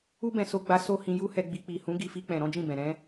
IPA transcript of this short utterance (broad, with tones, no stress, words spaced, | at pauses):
u˦bɛ̃˧so˧ɡ͡ba˧ so˦hĩ˧ ju˦hɛ˧ɡ͡bi˧ k͡pi˨hũ˨˦ ɡi˧fi˧k͡pɛ̃˨ ɾɔ̃˨˦d͡ʒĩ˦˨bɛ̃˨ɾɛ̃˨˦